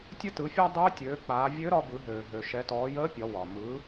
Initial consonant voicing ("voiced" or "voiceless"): voiceless